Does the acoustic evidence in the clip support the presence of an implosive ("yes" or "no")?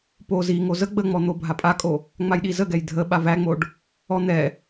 yes